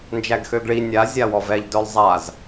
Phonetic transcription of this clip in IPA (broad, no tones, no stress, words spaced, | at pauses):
nd͡ʒæɡxøɡɭi nʲa zʲawɔvɛʎ dœlˠzˤaz